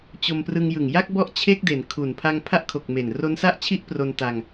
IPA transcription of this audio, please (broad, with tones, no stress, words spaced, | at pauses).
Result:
t͡ɕo˧mprɯ˧ŋ jɯ˨˩ŋja˥˩k̚ bɔ˥˩ʔt͡ɕʰe˥˩k̚de˩˦n kʰu˨˩n pʰa˧ŋpʰa˦˥ʔ kʰo˨˩k̚me˨˩n ro˦˥nsa˥˩ʔ t͡ɕʰi˥˩ʔpro˧nta˧ŋ